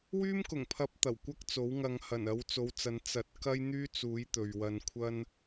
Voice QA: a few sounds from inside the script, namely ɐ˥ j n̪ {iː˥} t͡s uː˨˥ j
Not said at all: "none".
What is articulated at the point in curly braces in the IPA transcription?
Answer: yː˥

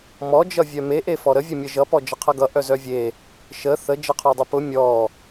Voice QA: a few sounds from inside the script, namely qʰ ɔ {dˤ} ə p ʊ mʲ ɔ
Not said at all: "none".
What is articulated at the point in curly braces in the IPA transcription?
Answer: dˤ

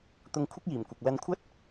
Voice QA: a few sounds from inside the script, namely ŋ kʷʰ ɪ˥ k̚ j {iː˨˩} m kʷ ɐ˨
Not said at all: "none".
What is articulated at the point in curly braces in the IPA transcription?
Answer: iː˨˩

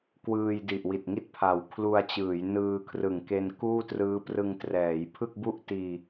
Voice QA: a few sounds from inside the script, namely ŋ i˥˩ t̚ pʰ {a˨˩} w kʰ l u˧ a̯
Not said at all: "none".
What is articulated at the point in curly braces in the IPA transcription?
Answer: a˨˩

